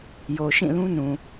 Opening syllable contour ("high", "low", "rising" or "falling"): low